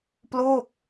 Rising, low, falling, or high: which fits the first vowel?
falling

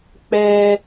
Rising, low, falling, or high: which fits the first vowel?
high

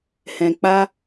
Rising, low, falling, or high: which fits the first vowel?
low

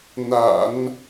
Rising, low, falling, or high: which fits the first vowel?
low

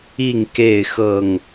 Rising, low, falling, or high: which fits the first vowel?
falling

